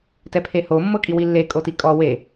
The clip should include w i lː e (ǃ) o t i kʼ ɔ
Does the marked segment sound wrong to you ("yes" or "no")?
yes